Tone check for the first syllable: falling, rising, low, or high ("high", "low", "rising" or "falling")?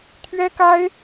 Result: high